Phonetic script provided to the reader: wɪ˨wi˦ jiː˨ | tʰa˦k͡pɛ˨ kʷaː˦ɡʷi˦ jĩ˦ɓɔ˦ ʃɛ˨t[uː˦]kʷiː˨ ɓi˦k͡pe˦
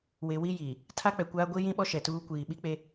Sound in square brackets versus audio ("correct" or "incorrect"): correct